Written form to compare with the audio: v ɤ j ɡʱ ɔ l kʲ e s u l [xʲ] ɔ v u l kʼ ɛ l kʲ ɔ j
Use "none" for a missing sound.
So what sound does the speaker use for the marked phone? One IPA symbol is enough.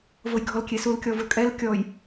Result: kʲ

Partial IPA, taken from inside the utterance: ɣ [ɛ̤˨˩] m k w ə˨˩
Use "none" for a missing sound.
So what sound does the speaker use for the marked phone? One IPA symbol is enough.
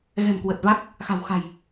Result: ɛ̤˨˩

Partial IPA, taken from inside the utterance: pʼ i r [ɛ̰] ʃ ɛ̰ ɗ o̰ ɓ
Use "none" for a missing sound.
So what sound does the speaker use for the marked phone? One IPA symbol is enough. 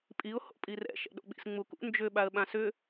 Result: ɛ̰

